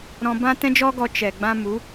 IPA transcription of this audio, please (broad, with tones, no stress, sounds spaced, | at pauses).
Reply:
ɾ ɔ̃˧ b ã˦ t ɛ̃˦ d͡ʒ ɔ˦ ɡ ɔ˧ t͡ʃ ɛ˨ ɡ͡b ã˦ m u˨˦